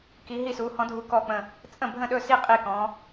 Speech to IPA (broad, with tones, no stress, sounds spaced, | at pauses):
k i˧˥ ɦ i˥˧ s u˧˥ h ɔ̃˧˥ dʱ u˧˥ k ɔ˥˧ k͡p ə̃˥˧ | t͡sʼ ə̃˥˧ bʱ ə̃˥˧ ɗ ɵ˥˧ s i˥˧ qʼ i˥˧ k ɔ̃˧˥